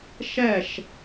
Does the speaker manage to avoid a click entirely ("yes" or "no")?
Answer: yes